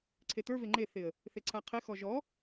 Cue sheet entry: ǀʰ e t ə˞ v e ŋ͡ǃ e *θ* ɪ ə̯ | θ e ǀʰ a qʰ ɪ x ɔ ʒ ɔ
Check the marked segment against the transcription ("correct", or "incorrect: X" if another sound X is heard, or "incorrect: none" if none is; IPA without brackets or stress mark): correct